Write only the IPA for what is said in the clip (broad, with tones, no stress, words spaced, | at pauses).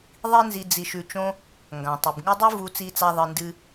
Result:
ðˤi˥nzi˧ d͡zi˧ʃʉ˧ t͡ʃõ˥ | ŋɡã˩tˤɨ˩bŋɨ˥ dˤu˥vu˧t͡si˧t͡sa˧ ðˤɨ˧ndɨ˥